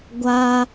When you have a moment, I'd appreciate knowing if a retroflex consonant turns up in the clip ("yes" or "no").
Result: no